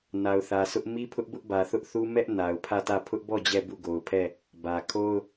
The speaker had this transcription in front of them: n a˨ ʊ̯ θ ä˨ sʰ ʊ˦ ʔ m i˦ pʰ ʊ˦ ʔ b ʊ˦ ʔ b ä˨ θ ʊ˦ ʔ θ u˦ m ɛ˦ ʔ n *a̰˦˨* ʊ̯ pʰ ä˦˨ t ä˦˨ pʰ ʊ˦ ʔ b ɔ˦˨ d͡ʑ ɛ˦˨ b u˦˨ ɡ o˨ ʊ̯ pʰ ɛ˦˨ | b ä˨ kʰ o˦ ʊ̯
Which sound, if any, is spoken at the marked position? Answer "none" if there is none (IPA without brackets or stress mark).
a˨